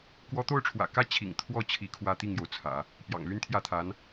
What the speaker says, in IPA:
k w ɔ˧˥ t̪ o˥˩ ʊ̯ ʈ͡ʂʰ w ä̰˨˩ k ä˥ t͡ɕʰ ḭ˨˩ ŋ t̪ʰ w ɔ˥˩ t͡ɕʰ i˧˥ kʰ w ä˥ t̪ i˥˩ ŋ j o˩ ʊ̯ t͡sʰ ä̰˨˩˦ | p j ɑ̰˨˩ ŋ l y˥ n t̪ʰ j ä˥˩ t̪ʰ a˧˥ n

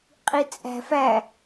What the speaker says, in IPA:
qʼ i t͡sʼ æ̤ f æ

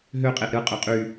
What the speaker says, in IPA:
ɦ ø qʼ e ʔ ɾ ɯ qʼ ø qʼ y

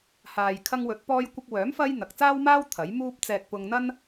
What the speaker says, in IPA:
h aː˨ j kʰ ɐ˧ ŋ w ɵ˨˥ t̚ p ɔː˧ j kʷ ɪ˧ k̚ w œː˨˥ m f ɐ˥ j n̪ ɐ˨ k̚ t͡s aː˥ w m aː˥ w t̪ʰ ɐ˨˥ j m uː˥ p̚ t͡s ɛː˧ k̚ p ʊ˧ ŋ n̪ ɐ˥ n

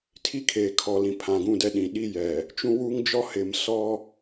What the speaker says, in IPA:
tʰ i˦ kʰ eː˨ kʰ ɔ˨ l ĩ˨ pʰ ã˨ ɡ ũ˦˨ d ɛ˦ ɗ ĩ˨ ɗ i˦ j ɛ˨ | t͡ʃ ũ˦ w uː˦ ŋ d͡ʒ ɔ˦ h ɪ˨˦ m s ɔ˦

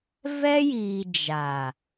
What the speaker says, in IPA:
v ɛ˦ j iː˨ d͡ʒ a˨

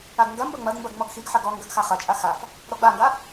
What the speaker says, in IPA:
a ɡ ŋ ɡ ɐ m b ɐ ŋ͡m ɐ d m b ɐ ɡ ŋ͡m ɔ ɡ x i ɡ ħ ɐ ɡ ɔ ŋ ɡ ɐ ɡ x a χ ɐ t͡ʃʼ a x a f | ɾ ɔ ɡ͡b a ŋ ɡ a

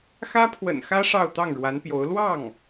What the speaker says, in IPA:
x ä˥ pʰ w ə̰˨˩ n x ä˥ ʂ ɑ˥˧ ʊ̯ t̪ ɑ˥˩ ŋ ɻ w a˧˥ n p j o˧˥ ʊ̯ l w ɑ˥˩ ŋ

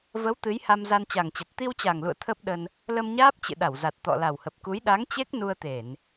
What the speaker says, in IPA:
v ə˨˦ w t̪ ɨ˨˦ j h a˧ m z a˧ n t͡ɕ a˨˩ ŋ t͡ɕ ə˨˩ t̚ t̪ i˧ w t͡ɕ a˨˩ ŋ l ṵ˧˨ ə̯ t̪ʰ ə˦˥ p̚ ɗ ə˧ n | l ə˧ m ɲ aː˦˥ p̚ t͡ɕ ɨ̰˧˨ ɗ a˧˩ w z a˨˩ t̚ t̪ ɔ̰˧˨ l a˨˩ w h ə˨˩ p̚ k u˨˦ j ɗ a˨˦ ŋ t͡ɕ e˦˥ k̚ n u˧ ə̯ t̪ e˧˩˨ n

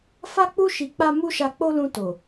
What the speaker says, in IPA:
f a˦ k͡p u˦ ʃ i˧ k͡p a˦ m u˦ ʃ a˧ k͡p o˦ l ũ˧ t o˨

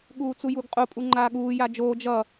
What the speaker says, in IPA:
ɠ uː t͡s u j u ɡ qʼ o pʼ u ŋ͡ǃ aː ɠ uː j a d͡ʒ oː d͡ʒ ʌ

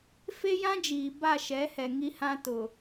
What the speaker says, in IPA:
f e˦ j ã˦ d͡ʒ iː˨ b a˦˨ ʃ ɛ˨˦ h ɛ˨ ŋ i˦ h ã˦ t ʊ˨

